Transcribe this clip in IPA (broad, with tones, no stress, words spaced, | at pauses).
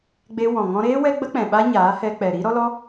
ɡ͡be˧ wɔ̃˨ŋɔ̃˧ɾeː˦ wɛ˦ɡ͡bə˦k͡pɛ̃˨ ɓa˦ɲaː˨˦hɛ˧ k͡pɛ˨ɾi˦ ɾɔ˦lɔ˦